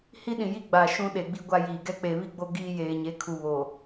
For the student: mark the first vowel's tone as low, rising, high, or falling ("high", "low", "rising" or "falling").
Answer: high